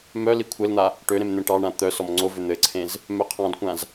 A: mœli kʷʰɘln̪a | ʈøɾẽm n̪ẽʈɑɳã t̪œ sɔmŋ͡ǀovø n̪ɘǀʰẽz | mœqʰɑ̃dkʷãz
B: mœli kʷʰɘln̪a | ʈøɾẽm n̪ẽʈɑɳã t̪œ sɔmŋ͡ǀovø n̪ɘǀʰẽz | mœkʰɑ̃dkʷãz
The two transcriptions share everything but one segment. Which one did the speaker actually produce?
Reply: A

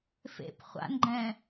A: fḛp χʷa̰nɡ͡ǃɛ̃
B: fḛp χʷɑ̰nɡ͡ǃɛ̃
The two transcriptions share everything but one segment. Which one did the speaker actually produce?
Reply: A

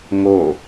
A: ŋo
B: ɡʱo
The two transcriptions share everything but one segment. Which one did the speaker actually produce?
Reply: A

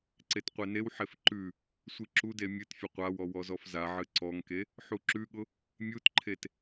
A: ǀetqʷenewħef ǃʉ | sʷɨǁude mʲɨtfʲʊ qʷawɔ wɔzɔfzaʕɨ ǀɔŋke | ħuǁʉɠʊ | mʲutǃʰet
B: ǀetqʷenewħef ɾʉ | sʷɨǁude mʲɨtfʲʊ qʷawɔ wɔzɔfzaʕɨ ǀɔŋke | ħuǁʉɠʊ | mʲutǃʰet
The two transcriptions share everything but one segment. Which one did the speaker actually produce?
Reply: A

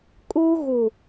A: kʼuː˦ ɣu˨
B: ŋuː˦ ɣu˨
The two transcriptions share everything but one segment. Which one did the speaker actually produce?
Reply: A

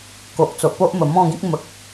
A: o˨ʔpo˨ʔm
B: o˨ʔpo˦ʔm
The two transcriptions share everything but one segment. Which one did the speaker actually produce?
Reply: B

